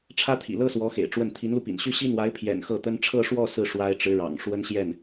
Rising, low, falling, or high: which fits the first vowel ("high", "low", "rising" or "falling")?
high